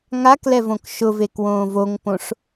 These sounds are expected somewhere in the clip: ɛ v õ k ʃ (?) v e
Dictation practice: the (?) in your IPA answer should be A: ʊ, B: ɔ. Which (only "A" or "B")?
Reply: A